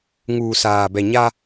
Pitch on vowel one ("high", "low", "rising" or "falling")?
low